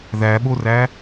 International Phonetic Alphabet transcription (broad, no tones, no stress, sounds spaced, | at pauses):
ð æ ɓ o r æ